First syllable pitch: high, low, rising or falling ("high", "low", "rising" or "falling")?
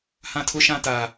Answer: high